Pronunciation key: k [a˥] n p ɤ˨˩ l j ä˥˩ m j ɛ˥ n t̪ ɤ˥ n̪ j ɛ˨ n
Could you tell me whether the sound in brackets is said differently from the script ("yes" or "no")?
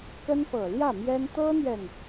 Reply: yes